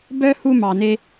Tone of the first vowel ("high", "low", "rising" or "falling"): high